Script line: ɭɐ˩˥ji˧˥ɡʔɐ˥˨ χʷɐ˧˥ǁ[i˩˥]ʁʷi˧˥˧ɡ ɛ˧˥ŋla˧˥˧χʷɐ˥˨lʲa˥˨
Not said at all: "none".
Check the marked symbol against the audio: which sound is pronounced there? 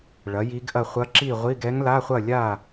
i˥˨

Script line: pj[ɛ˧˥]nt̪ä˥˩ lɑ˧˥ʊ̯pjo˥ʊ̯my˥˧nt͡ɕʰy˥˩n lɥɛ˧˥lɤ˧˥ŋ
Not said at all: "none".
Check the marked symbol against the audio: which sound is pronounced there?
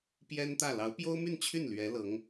ɛ˥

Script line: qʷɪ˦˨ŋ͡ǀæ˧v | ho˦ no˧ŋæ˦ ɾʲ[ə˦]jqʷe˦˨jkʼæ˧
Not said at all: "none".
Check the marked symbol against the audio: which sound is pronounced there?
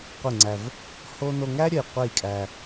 ə˧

